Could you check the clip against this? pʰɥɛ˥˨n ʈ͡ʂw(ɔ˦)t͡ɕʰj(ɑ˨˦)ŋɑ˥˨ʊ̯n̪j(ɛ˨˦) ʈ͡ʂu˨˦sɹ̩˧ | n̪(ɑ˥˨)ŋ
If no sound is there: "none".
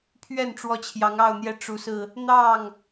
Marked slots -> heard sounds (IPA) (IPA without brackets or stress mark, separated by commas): ɔ˦, ɑ˨˦, ɛ˦, ɑ˥˨